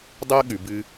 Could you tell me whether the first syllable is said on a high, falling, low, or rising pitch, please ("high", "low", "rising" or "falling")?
high